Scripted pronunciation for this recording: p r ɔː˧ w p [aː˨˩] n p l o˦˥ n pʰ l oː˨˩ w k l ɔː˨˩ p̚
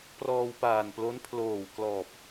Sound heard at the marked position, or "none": aː˨˩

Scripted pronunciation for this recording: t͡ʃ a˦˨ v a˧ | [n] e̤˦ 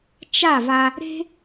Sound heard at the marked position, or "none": ɾ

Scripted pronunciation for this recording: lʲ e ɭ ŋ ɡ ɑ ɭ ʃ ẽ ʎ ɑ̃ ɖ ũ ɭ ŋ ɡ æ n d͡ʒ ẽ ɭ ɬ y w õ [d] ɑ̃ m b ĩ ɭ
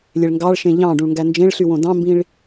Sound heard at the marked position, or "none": d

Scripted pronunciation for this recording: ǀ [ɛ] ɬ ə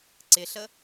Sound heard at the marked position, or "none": ɪ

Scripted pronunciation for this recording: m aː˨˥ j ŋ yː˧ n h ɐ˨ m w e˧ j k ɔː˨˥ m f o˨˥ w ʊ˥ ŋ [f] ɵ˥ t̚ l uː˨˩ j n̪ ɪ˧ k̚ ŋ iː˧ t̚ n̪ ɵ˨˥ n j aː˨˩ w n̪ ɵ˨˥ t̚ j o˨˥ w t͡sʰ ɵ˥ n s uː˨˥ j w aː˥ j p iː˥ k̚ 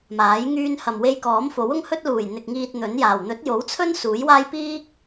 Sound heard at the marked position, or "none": h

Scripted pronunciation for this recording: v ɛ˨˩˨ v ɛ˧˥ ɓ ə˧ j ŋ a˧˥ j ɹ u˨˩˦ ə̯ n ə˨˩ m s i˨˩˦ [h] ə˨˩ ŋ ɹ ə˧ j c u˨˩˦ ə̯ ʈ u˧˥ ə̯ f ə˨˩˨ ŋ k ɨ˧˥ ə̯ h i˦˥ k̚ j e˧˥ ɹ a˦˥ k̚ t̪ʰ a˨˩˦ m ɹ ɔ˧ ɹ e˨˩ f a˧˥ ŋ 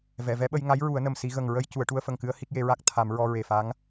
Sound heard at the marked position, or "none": ɣ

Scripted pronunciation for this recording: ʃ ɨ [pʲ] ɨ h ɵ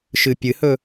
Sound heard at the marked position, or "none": pʲ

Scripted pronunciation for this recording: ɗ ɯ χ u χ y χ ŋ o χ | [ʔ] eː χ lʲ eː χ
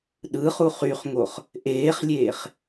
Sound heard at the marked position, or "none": ʔ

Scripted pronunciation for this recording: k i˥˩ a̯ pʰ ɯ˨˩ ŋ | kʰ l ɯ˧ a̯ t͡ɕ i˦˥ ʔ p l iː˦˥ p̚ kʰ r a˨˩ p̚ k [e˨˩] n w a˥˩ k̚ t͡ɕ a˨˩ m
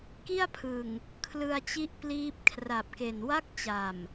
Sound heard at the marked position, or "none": e˨˩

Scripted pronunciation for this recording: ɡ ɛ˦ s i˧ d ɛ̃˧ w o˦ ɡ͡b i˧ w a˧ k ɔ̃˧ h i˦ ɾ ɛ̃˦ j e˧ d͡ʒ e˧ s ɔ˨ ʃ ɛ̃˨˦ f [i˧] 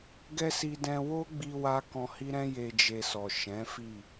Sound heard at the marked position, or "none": i˦˨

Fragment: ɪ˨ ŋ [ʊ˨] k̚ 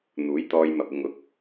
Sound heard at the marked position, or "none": ʊ˨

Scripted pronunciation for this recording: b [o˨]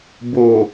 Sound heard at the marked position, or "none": o˨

